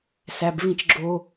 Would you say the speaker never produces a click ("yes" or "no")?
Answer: no